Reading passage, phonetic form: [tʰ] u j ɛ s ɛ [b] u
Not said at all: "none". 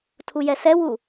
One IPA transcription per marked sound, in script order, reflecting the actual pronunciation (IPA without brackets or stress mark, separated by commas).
tʰ, w